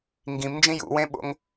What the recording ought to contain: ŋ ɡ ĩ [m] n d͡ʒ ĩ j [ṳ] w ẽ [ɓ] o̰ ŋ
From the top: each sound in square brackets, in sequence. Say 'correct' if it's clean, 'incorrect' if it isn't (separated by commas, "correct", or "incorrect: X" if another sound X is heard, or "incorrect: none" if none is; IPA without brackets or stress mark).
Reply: correct, incorrect: ṵ, correct